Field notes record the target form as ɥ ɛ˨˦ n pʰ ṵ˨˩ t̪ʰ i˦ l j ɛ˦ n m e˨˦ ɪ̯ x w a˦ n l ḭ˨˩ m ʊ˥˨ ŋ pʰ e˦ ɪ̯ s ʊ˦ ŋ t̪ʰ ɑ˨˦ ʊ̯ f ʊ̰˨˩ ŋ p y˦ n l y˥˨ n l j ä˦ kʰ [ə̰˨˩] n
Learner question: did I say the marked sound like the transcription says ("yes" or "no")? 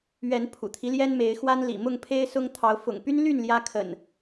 yes